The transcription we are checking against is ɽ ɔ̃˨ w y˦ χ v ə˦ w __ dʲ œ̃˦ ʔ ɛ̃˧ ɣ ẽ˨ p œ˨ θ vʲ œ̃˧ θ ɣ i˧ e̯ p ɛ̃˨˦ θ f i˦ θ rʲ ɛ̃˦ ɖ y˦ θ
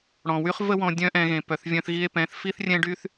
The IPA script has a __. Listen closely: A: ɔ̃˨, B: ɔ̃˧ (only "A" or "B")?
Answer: B